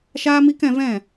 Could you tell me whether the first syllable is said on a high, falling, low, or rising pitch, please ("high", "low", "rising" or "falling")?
high